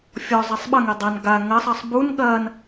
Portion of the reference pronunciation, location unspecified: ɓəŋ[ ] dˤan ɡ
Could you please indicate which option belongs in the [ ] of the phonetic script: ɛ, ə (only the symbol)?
ɛ